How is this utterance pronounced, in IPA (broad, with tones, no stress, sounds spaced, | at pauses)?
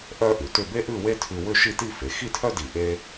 ʔ œ˥ ʔ ʉ˩˧ t ʏ˥˧ b e˥ ʔ ʉ˥˧ w e˥ tʰ ʉ˧ w ʏ˥˧ ʃ i˥˧ t i˥˧ f e˩˧ x i˥˧ tʰ œ˥ d i˧˩ ʔ e˥